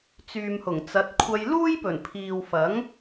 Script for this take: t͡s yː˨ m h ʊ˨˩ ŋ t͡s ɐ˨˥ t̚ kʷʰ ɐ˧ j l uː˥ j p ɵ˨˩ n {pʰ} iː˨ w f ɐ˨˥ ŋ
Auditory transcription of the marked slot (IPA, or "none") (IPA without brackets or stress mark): pʰ